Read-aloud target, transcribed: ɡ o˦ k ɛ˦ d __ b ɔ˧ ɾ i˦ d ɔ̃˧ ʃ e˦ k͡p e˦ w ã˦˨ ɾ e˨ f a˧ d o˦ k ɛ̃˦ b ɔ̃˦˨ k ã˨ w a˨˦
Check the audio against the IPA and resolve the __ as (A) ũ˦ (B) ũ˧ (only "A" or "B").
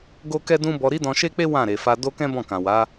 A